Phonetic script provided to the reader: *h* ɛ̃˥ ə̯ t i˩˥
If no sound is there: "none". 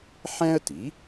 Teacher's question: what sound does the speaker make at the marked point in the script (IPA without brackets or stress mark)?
ħ